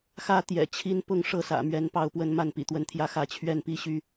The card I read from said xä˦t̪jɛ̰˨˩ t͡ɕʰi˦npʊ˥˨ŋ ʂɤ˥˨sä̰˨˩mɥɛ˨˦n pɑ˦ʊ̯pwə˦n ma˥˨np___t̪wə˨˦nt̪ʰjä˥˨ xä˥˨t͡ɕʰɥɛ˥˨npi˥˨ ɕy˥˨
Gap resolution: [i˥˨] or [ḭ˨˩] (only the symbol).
ḭ˨˩